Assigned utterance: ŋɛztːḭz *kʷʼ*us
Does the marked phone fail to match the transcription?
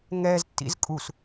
yes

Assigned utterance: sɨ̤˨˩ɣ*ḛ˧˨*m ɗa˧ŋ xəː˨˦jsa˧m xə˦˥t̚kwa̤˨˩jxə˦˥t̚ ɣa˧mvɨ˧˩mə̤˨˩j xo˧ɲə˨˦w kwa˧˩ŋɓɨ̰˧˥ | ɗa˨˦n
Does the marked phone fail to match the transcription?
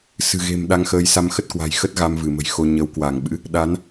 yes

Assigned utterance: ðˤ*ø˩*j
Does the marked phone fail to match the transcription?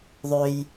no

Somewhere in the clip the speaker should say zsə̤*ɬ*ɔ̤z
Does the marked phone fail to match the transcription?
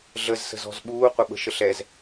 yes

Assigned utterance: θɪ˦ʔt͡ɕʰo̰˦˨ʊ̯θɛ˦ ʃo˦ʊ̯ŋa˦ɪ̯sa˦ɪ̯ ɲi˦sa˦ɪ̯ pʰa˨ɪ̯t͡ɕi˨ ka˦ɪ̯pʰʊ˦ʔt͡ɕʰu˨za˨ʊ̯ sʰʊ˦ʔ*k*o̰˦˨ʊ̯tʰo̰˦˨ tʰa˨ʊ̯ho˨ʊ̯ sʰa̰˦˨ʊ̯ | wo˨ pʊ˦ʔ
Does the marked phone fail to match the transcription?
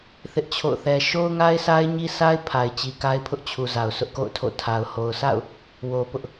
no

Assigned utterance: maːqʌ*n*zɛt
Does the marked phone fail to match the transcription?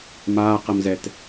yes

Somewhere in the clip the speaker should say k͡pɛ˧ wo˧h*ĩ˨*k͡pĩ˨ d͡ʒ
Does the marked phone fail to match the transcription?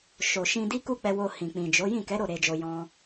no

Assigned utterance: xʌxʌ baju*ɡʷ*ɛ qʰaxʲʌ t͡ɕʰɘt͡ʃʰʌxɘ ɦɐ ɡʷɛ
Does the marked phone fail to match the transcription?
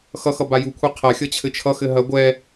yes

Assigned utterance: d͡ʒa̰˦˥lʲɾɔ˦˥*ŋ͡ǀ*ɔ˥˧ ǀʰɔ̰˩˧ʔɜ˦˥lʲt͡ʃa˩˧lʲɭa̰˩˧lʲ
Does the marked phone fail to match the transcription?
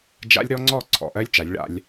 no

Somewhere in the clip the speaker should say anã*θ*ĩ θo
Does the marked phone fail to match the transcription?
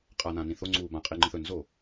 yes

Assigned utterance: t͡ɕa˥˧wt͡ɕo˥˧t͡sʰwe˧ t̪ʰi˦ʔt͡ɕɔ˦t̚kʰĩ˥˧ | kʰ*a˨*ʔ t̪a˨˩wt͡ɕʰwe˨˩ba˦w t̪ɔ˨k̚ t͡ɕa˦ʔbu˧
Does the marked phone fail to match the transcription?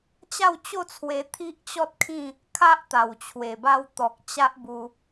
yes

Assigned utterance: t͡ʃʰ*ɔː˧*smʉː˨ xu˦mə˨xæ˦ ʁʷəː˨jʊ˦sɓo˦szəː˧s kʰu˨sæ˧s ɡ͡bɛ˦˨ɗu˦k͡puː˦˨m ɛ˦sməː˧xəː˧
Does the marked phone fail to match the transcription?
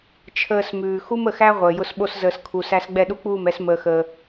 yes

